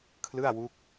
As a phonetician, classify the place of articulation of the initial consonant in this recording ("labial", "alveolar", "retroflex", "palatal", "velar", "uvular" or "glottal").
velar